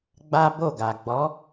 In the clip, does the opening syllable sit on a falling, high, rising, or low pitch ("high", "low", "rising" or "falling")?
high